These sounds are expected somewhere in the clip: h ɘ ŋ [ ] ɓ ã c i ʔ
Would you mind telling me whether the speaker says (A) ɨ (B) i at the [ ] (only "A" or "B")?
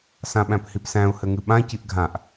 A